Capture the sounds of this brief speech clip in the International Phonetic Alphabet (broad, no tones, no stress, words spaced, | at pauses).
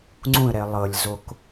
ŋ͡ǀũə̯ɾɛɪ̯ lˠɤlʲzok